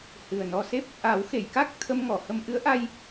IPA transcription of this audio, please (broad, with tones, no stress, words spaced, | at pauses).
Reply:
hɨ˨˩ə̯nɔ˧se˦˥p̚ | ʔa˨˩˦w xe˨˩˨jka˦˥k̚ t̪ʰə˧mŋɔ˨˩˨hə˧mʔɨ˧˥ə̯ ʔa˧j